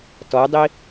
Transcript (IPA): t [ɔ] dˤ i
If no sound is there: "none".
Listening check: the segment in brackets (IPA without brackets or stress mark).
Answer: ɔ